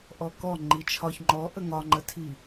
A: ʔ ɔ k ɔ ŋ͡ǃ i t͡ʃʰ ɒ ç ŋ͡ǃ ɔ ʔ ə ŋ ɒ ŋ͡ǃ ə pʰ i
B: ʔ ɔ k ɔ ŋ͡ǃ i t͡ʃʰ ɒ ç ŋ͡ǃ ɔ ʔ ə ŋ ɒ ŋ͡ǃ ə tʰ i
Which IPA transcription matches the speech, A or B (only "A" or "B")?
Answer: B